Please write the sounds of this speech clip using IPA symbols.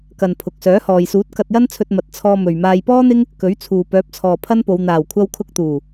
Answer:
kɐ˨n pʰʊ˨k̚ sœː˨˥hɔː˨jsuː˨˥t̚ kɐ˧t̚jɐ˥nt͡sʰɵ˧t̚ mɐ˨t̚ t͡sʰɔː˧mɵ˨ɥmaː˧j pɔː˥n̪ɪ˥ŋ | kɵ˨˥ɥt͡sʰuː˨pœː˨˥p̚ t͡sʰɔː˨pʰɐ˥npo˨˧w n̪aː˨˩wkʷʰɐ˧wkʰʊ˧k̚t̪uː˨˩

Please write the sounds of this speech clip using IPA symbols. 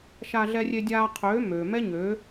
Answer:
ʃaː˧ɮɛ˧rʲe˧ dʲaː˧qʰøː˨˦ møː˨mɛ˦ɲøː˨˦

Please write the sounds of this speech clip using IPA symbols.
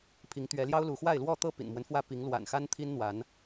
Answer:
pʰi˨˦ŋt̪ɥɛ˨˦ljɑ˦ʊ̯ lu˨˦xwa˥˨ɪ̯ lwɔ˥˨ t̪ɤ˥˨ pḭ˨˩nmwə˦nfwä˥˨ pi˨˦ŋlwa̰˨˩nxa˦n t̪ʰi˦nn̪wa˨˦n

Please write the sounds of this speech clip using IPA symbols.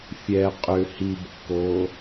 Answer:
fʲɛ qʼʏ hibkːoː

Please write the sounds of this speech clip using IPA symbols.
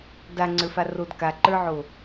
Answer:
daŋ͡ǀə˞fa rod kaǃə˞ʕo

